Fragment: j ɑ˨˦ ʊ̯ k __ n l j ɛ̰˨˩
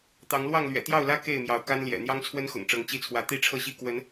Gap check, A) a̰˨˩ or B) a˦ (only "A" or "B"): B